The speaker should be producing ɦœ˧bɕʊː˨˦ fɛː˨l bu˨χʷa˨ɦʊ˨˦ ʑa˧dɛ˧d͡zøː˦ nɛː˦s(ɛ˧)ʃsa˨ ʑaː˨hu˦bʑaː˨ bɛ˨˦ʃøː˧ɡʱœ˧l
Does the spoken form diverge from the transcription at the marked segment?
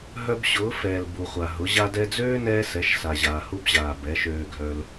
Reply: yes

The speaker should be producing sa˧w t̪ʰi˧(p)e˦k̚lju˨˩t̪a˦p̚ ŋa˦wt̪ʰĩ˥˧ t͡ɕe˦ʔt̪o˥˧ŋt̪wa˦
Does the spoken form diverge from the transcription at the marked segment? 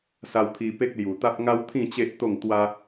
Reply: no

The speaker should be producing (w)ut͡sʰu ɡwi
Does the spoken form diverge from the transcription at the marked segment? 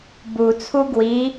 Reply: yes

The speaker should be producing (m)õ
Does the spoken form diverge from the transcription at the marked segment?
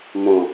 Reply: no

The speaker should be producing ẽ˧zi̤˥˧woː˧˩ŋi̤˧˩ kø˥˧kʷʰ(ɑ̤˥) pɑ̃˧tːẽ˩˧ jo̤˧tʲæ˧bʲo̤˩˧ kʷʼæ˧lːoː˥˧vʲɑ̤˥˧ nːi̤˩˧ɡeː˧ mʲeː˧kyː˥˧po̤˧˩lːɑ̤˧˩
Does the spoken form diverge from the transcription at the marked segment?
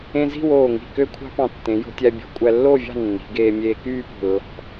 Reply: no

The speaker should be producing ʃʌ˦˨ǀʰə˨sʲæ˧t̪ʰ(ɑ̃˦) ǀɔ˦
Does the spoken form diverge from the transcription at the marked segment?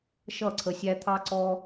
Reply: yes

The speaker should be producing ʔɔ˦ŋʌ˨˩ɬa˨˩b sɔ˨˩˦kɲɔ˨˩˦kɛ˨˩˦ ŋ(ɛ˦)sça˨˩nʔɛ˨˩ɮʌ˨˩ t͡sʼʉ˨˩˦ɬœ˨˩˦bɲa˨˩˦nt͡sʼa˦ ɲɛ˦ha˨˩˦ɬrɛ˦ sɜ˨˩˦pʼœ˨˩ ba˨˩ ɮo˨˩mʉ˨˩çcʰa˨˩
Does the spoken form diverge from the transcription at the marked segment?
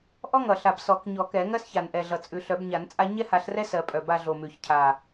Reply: yes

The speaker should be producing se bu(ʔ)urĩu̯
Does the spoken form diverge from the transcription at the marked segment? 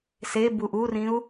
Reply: no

